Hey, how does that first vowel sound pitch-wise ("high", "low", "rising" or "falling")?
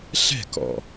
falling